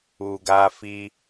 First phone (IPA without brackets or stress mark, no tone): u